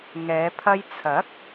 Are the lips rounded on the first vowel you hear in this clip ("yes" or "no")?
no